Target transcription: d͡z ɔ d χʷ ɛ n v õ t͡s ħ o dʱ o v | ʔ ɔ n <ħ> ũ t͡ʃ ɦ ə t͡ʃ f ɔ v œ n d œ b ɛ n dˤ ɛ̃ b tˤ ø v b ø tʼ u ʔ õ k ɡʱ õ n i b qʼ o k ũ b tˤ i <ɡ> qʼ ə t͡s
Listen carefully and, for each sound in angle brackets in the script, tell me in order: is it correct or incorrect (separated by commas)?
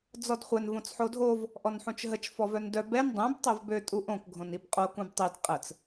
correct, incorrect